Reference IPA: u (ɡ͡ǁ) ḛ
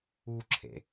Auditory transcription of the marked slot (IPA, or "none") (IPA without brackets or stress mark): ǁʰ